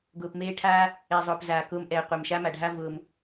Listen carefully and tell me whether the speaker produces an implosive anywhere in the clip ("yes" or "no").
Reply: no